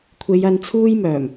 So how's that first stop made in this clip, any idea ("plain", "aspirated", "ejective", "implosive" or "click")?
aspirated